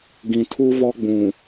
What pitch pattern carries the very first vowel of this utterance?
low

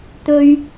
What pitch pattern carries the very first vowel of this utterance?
high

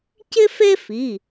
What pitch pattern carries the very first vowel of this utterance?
high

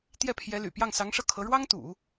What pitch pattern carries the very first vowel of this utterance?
falling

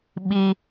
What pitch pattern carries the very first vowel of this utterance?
high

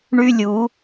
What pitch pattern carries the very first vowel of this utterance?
high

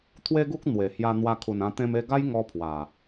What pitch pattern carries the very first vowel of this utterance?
high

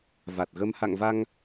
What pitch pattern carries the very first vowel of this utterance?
low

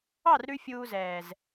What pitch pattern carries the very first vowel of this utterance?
falling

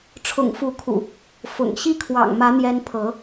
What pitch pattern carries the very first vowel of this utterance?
low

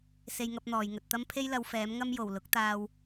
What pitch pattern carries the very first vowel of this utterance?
high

